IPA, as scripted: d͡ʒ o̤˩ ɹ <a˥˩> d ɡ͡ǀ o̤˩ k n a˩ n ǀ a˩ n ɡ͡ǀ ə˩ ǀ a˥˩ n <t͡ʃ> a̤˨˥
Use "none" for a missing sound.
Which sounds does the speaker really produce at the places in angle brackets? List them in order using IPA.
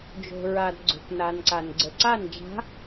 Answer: a˩, d͡ʒ

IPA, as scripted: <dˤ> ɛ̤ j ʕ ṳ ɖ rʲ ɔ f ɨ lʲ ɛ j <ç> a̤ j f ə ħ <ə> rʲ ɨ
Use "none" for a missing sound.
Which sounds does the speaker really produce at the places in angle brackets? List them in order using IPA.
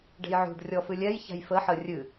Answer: ɖ, ç, ə

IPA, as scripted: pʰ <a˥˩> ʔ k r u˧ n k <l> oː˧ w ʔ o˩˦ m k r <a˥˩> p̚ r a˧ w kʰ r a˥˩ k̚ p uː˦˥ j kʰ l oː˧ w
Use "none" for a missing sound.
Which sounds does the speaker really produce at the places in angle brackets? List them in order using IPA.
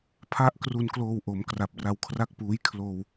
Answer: a˥˩, l, a˨˩

